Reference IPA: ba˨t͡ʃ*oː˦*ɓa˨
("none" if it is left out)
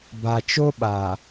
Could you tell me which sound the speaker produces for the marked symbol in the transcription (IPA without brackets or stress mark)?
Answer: o˦